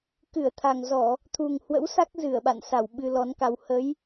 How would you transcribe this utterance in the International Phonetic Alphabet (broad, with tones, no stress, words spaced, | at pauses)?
kɨ˧˩ə̯t̪ʰa˨˩ŋzɔ˧˩˨ | t̪ʰu˨˩ŋhwə̰˧˥wsa˦˥k̚ zɨ˧˩ə̯ɓa̰˧˨n sa˧˩w ɓɨ˧lɔ˨˦nka˧w hə˨˦j